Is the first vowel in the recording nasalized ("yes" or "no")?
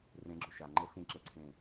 yes